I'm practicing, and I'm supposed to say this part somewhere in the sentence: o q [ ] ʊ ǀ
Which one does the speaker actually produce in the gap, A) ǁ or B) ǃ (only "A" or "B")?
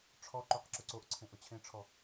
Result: A